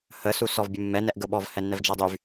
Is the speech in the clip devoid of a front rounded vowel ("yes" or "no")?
no